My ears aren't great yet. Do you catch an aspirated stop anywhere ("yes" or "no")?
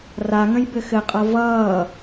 no